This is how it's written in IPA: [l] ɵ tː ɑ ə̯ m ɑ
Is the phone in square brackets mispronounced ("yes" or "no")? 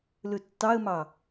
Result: no